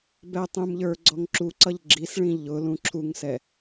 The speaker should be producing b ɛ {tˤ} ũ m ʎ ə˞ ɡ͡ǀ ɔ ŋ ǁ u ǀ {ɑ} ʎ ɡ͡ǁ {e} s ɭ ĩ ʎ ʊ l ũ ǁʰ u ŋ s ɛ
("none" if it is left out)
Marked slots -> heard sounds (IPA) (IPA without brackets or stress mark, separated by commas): tˤ, ʌ, i